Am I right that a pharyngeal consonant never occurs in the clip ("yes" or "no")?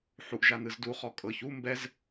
no